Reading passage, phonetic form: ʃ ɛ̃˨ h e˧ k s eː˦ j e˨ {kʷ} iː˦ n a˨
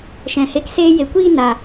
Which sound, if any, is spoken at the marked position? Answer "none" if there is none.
kʷ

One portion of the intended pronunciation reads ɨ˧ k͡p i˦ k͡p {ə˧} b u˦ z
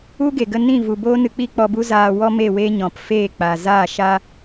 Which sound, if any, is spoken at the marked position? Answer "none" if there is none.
ɔ˧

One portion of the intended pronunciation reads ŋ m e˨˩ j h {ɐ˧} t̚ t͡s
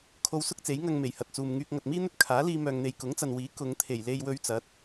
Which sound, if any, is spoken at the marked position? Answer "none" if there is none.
ɐ˨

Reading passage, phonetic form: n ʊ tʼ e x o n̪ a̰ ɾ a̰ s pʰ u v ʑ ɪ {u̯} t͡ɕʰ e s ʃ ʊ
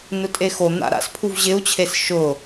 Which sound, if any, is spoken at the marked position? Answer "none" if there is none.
u̯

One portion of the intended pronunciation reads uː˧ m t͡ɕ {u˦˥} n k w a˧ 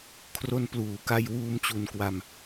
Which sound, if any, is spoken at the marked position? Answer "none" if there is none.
u˨˩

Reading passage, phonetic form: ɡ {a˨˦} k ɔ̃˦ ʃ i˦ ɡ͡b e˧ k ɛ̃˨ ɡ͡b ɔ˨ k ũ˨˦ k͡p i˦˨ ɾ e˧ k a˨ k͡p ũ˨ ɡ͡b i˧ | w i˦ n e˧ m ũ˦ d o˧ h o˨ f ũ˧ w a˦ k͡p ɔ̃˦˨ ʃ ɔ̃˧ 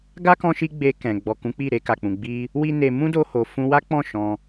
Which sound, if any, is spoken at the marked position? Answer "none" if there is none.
a˦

